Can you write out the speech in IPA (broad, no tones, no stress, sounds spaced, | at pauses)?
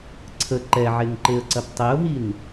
ǀʰ ə ǃ ɛ ʕ e ŋ ǃ e ə̯ ǀ ɐ p tˤ e ʊ̯ ɦ i n